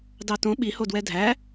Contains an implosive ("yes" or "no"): yes